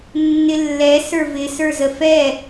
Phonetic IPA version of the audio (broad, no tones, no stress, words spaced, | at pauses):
nːɪlːɛ sə˞vɪ sə˞zəfɛ